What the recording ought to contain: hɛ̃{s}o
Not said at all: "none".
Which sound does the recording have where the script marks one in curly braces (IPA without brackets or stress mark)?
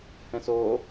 s